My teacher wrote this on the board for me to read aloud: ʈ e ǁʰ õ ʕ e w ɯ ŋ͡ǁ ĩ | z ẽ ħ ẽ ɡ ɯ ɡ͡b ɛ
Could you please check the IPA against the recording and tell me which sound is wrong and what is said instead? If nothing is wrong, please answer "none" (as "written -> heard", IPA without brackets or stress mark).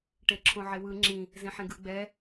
none